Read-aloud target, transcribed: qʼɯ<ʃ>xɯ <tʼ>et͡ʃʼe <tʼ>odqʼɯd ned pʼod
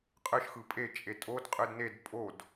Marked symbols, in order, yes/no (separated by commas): yes, no, yes